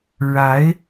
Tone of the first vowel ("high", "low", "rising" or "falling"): rising